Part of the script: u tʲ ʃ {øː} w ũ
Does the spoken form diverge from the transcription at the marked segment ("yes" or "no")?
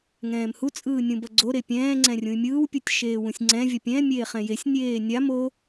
yes